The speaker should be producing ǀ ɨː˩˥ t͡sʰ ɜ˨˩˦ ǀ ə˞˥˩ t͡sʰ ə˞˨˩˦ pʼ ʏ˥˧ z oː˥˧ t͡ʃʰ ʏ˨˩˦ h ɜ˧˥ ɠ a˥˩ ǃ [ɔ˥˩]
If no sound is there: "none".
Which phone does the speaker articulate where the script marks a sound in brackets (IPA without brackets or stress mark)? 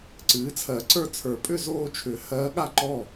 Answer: ɔ˥˩